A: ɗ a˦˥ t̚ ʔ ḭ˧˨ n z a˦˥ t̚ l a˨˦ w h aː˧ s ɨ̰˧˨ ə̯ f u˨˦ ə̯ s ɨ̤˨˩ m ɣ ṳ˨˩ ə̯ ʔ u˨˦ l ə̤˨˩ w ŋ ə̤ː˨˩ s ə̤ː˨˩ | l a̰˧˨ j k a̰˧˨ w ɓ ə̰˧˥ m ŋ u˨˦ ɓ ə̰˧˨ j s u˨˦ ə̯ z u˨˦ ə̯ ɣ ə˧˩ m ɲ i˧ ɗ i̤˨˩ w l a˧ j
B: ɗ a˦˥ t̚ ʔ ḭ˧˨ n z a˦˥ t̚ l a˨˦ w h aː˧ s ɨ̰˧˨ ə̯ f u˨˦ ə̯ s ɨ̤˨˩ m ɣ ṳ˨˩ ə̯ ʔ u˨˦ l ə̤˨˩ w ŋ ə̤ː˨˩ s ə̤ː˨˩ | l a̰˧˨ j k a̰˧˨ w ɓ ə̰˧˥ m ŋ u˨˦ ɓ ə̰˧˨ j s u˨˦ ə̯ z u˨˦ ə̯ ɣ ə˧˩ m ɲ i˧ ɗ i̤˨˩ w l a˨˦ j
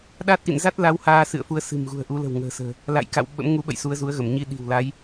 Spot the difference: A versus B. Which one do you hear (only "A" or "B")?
B